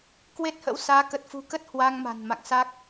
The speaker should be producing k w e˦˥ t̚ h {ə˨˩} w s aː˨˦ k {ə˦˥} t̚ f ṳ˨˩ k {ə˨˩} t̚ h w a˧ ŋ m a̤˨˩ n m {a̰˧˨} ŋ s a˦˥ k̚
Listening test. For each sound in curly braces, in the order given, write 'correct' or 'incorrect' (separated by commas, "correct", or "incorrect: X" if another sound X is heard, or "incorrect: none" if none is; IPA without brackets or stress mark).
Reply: incorrect: ə̰˧˥, incorrect: ə˨˩, incorrect: ə˦˥, correct